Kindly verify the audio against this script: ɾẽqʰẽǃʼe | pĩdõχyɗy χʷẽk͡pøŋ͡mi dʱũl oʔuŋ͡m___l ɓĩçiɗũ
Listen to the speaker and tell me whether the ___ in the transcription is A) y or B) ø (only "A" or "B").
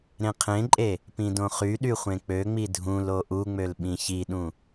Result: B